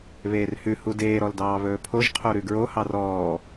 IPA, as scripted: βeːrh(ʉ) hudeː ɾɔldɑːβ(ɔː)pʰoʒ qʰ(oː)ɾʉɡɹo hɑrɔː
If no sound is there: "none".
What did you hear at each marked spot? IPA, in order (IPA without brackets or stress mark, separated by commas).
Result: ʉ, ɵː, o